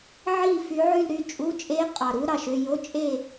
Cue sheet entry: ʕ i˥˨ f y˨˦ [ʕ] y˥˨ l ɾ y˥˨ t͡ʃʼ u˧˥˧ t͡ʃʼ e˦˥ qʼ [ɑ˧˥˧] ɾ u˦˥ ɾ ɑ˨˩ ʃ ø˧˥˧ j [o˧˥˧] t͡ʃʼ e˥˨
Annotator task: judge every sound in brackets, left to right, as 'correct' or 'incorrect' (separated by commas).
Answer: correct, incorrect, correct